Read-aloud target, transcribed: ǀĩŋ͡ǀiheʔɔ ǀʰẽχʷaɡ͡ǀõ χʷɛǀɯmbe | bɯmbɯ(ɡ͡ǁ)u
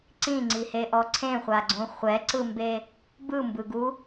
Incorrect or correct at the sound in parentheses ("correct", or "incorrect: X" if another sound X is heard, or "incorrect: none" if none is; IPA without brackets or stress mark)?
incorrect: ɡ